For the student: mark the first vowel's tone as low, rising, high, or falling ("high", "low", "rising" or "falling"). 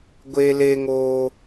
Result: high